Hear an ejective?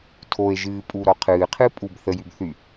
yes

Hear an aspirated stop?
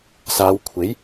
yes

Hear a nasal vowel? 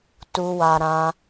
yes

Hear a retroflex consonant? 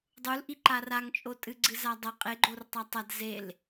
no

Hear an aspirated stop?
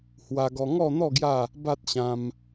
no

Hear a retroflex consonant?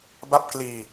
no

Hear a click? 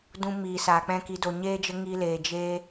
no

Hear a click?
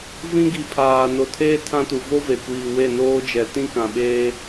no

